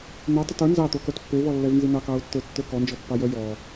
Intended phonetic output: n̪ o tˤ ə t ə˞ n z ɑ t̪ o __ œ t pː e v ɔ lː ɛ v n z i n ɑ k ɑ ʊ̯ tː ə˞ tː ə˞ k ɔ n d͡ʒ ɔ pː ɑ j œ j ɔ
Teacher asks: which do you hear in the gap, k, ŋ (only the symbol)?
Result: k